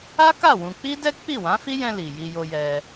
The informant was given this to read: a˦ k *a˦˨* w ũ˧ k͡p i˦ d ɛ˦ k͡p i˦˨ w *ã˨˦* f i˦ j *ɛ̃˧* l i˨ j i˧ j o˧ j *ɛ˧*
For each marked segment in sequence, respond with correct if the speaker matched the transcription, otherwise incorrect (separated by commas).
correct, correct, correct, correct